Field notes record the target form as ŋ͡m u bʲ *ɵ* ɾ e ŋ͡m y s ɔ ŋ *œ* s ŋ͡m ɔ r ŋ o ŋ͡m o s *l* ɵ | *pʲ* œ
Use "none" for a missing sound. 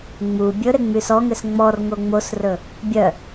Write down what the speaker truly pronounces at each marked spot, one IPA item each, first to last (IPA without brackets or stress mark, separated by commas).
ɵ, ø, r, bʲ